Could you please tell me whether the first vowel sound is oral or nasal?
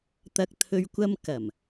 oral